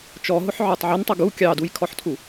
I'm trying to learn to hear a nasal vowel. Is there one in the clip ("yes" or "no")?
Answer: no